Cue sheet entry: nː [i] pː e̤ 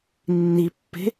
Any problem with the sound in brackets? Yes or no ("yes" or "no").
no